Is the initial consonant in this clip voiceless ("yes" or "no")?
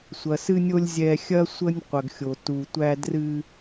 yes